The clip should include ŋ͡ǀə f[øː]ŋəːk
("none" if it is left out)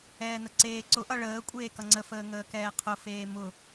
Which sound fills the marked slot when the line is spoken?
əː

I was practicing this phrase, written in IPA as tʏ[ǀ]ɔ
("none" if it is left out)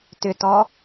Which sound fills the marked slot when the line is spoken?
t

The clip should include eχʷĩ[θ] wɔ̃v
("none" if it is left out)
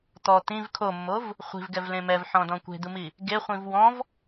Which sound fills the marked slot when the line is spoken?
v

